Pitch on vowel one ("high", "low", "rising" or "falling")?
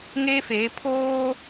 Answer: high